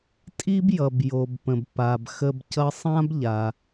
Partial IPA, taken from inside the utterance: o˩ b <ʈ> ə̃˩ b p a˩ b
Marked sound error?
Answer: yes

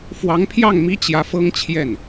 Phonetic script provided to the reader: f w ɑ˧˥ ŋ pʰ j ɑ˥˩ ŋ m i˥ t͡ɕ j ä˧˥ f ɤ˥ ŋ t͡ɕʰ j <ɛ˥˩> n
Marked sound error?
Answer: no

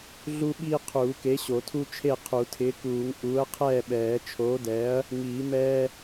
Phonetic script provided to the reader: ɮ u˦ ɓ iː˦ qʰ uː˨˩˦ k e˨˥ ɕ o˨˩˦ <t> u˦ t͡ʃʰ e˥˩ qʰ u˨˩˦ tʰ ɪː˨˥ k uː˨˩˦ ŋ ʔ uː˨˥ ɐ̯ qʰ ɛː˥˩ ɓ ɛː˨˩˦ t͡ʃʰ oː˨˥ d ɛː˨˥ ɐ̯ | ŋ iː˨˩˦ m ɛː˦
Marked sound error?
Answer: yes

